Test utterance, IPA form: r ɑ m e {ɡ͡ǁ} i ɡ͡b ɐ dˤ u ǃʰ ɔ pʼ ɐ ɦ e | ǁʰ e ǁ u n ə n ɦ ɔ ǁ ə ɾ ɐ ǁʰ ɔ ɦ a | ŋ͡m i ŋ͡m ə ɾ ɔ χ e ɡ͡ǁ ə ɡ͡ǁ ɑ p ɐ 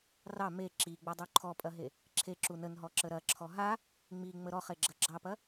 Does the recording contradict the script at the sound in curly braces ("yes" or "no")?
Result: yes